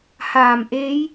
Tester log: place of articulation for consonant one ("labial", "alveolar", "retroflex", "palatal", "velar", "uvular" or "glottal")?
glottal